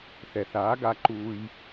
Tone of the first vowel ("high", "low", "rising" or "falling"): low